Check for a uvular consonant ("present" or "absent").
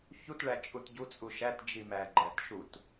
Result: absent